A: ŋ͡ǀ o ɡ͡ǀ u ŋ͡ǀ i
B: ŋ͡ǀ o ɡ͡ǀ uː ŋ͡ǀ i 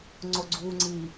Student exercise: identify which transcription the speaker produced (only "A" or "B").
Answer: B